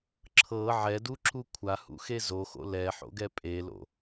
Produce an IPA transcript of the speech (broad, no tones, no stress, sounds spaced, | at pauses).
ǁʰ ɤ ʕ ɛ d u ǁ u kʷʰ a h ṵ x e z o x o̰ l ɛ ħ o̰ ɡ ɛ pʼ e l o̰